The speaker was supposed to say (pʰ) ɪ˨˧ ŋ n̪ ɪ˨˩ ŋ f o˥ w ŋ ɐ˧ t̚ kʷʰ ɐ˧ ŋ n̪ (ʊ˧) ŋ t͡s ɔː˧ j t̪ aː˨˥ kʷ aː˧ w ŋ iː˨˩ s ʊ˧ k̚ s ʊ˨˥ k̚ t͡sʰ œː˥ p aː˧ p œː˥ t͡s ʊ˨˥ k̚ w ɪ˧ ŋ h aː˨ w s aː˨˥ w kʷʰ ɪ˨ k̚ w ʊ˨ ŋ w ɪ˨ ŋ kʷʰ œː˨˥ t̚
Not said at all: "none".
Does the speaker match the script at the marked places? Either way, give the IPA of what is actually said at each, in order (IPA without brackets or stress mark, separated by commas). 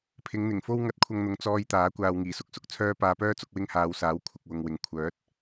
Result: pʰ, ʊ˨